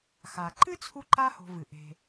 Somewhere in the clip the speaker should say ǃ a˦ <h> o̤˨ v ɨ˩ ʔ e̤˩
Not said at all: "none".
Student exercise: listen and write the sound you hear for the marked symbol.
h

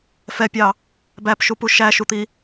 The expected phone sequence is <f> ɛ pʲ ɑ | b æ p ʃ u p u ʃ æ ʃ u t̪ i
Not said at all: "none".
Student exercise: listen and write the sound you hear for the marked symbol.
f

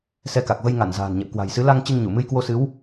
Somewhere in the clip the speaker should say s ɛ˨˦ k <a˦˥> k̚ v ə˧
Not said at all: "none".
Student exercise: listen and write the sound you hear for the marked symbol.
a˨˩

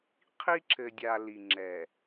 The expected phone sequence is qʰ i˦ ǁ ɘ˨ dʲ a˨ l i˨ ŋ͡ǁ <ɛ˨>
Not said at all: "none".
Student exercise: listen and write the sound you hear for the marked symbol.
ɛ˨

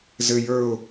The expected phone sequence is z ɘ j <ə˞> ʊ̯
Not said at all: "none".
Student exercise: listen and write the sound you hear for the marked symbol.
ə˞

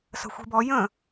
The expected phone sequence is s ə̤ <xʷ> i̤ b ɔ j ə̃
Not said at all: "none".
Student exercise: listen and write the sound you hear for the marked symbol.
xʷ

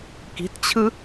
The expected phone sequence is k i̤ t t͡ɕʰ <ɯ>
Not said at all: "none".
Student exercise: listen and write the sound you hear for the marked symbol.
ɯ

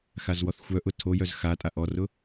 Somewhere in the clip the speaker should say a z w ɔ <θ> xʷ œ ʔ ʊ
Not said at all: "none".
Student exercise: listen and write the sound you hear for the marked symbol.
θ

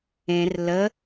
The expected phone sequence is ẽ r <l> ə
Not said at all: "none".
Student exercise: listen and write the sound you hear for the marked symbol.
l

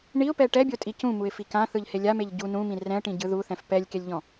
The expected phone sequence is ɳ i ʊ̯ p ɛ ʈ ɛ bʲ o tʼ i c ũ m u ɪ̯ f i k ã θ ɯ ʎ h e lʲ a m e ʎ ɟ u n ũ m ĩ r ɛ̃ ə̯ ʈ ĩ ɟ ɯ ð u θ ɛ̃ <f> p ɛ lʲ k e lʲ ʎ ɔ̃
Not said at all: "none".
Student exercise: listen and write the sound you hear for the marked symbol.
f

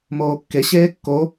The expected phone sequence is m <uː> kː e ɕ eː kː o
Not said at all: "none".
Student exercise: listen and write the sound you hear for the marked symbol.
oː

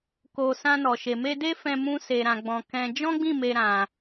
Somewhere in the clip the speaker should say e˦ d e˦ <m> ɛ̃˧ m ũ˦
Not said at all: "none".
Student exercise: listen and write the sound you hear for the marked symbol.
f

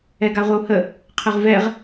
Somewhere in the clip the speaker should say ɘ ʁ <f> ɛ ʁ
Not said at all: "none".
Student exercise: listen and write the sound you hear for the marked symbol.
v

